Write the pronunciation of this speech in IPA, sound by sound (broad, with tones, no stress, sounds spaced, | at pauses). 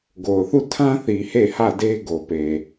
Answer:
ɡ o˨ ʊ̯ θ u˦˨ tʰ ã˦ θ i˨ h e˦˨ h ä˦˨ d e˦ ɡ o˨ p e˨